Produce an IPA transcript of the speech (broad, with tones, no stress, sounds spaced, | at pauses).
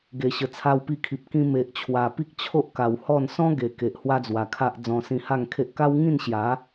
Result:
ɡ e˨˩ ɕ ə˨˩ t͡sʰ a˧ w p i˧ kʰ i˨ p̚ k ĩ˧ m e˨ ʔ t͡ɕʰ w a˨˩ p i˦ k̚ t͡ɕʰ o˦ ʔ k a˨˩ w h ɔ˥˧ n s ɔ̃˦ ɡ e˨˩ k e˨ ʔ h w a˦ d͡z w a˨˩ kʰ a˦ ʔ d͡z ɔ̃˧ s ĩ˧ h a˥˧ ŋ kʰ e˦ ʔ k a˦ w ŋ ĩ˥˧ n ɕ j a˨˦